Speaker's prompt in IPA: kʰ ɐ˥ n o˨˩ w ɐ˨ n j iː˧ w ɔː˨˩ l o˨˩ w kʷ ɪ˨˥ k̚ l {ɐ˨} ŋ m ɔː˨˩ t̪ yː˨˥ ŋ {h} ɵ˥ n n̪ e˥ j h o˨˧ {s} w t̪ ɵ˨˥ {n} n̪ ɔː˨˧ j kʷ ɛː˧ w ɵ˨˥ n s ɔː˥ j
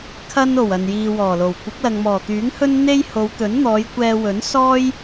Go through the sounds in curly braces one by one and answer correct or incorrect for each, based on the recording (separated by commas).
correct, correct, incorrect, correct